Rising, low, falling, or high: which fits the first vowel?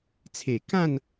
low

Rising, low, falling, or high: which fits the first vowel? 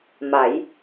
rising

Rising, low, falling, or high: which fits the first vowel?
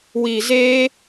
low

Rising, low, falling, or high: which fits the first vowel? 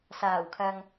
low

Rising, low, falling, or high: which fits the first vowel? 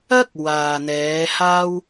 high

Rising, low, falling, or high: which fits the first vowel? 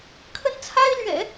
high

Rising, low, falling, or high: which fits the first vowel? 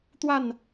falling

